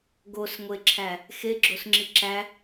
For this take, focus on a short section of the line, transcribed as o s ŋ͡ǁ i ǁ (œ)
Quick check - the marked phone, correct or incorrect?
incorrect: æ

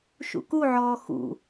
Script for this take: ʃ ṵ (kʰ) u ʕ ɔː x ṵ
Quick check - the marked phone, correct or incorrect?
incorrect: k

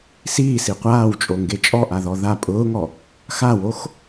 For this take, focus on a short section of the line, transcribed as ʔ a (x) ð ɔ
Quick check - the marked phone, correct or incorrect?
incorrect: none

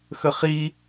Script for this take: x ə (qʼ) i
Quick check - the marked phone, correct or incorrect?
incorrect: χ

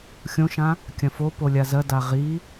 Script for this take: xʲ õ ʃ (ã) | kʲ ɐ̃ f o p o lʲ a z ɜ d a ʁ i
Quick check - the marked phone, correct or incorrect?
correct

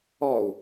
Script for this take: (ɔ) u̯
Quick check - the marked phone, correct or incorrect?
correct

